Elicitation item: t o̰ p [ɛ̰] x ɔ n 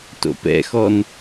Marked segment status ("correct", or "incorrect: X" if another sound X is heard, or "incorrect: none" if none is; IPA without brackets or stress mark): correct